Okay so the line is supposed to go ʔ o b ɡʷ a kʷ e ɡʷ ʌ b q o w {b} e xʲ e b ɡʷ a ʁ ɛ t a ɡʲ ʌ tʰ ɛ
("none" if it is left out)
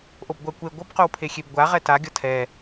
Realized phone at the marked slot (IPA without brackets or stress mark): pʰ